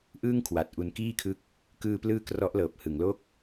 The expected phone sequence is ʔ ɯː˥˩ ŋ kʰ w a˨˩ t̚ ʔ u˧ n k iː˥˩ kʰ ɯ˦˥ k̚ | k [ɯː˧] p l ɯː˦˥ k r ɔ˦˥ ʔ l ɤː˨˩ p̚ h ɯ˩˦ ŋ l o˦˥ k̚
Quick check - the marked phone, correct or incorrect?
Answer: correct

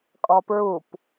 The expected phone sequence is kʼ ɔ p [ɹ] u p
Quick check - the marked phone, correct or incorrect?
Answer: correct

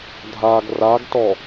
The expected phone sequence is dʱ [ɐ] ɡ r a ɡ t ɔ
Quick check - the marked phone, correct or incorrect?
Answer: incorrect: a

